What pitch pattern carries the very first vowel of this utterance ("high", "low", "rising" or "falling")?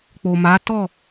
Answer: low